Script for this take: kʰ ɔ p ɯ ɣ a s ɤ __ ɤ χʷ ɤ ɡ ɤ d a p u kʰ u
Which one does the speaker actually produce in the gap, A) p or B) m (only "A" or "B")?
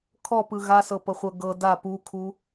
A